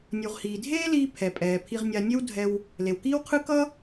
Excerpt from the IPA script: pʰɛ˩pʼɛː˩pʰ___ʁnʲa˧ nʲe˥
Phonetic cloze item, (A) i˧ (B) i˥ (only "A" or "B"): A